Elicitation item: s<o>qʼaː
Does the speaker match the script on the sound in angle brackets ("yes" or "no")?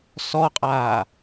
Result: no